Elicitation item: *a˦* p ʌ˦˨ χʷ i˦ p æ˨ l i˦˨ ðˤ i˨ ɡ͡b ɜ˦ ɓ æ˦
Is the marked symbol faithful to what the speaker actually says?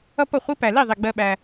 no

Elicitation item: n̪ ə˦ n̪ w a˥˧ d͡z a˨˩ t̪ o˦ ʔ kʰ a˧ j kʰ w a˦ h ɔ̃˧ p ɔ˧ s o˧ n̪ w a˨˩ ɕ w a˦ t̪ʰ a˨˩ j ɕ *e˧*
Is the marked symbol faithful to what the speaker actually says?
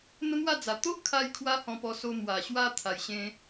no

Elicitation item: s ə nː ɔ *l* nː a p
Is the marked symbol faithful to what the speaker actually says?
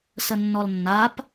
yes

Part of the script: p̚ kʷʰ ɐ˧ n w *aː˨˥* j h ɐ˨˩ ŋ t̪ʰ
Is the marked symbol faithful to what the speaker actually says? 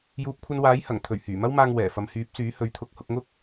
yes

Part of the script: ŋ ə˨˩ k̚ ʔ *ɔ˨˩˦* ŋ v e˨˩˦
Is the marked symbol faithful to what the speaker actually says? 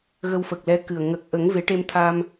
no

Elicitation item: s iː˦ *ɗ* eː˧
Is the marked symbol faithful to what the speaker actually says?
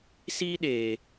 yes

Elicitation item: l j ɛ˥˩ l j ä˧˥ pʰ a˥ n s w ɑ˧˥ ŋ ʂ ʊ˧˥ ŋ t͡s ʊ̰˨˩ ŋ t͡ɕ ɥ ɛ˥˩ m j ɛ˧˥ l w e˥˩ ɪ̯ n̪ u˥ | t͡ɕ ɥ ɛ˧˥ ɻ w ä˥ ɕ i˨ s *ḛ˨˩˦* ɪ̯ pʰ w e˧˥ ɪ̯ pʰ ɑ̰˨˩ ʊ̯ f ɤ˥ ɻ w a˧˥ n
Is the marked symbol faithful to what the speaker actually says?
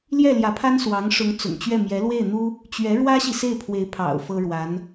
no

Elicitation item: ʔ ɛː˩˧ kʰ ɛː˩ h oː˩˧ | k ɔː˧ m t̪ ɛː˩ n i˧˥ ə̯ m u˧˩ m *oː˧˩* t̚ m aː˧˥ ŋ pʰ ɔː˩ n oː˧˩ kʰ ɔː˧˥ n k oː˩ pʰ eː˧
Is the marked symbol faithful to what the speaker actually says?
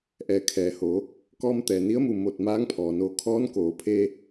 yes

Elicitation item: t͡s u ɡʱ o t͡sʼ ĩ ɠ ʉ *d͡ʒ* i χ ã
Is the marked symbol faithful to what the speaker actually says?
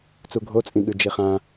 yes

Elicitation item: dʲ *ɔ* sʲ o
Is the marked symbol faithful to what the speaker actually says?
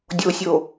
no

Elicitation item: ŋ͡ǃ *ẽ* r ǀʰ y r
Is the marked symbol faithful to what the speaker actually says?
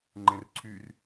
yes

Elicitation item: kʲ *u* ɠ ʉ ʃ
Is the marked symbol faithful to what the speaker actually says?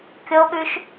no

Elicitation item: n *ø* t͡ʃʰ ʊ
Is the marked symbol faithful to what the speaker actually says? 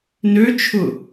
yes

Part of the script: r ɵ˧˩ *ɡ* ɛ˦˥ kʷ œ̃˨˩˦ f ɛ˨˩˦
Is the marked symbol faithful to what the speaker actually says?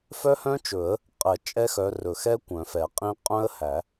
no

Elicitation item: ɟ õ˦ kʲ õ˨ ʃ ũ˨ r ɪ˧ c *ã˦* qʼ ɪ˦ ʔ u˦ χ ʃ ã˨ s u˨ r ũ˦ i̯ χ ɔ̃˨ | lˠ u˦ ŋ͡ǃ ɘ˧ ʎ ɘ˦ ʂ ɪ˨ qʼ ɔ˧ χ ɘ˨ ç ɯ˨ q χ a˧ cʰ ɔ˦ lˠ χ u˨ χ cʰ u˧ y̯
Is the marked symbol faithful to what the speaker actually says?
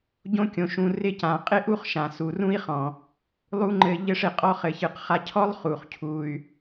no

